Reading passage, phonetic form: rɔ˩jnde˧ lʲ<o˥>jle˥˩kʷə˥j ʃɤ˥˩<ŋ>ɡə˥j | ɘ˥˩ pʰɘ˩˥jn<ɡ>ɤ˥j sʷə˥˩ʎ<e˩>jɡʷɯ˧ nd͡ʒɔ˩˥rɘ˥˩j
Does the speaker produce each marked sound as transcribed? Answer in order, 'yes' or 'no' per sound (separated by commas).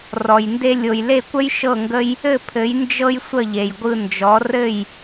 no, yes, no, yes